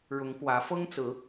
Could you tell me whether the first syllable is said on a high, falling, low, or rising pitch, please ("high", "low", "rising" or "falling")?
rising